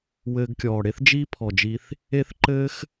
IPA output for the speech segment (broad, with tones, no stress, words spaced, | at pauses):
wɘː˧ɡkʲɔː˨ɽe˦θd͡ʒiː˦ pʰɔ˨d͡ʒi˧θ | e˦θǃɘː˦x